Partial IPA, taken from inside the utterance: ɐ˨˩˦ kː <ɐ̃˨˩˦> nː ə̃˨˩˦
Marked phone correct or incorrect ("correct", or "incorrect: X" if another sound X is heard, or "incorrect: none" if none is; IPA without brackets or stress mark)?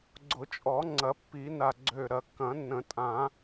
correct